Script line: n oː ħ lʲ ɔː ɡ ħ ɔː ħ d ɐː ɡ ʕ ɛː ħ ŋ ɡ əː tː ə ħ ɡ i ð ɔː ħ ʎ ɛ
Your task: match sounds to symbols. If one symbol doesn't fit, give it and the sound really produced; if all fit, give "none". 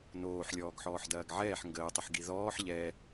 tː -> tˤ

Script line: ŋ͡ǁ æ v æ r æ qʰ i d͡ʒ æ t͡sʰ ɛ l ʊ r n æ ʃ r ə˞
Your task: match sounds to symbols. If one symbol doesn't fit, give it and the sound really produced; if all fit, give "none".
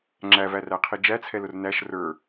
none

